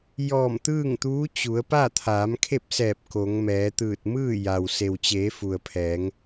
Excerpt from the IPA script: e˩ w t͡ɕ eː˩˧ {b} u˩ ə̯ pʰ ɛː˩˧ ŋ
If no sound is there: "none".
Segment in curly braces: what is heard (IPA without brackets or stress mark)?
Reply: f